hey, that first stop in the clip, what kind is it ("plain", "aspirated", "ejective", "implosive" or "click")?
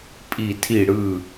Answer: ejective